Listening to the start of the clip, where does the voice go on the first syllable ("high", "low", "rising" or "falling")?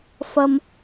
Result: high